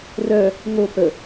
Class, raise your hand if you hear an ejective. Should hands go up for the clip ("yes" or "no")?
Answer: no